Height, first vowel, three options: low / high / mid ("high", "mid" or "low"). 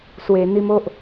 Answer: mid